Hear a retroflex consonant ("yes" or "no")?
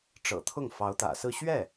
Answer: yes